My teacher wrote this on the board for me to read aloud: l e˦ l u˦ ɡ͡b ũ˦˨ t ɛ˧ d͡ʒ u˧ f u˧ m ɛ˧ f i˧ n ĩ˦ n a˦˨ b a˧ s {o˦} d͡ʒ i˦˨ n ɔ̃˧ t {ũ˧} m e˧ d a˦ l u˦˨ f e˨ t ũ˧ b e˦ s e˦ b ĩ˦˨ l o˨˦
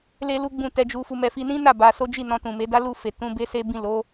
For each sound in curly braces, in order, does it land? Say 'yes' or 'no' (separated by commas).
yes, no